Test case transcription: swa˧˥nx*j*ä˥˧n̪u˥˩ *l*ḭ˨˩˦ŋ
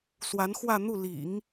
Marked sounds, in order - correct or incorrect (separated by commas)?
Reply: incorrect, correct